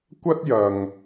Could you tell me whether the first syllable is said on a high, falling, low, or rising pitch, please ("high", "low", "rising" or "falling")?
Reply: high